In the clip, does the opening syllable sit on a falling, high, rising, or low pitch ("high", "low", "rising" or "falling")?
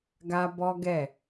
high